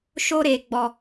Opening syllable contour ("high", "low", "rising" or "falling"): high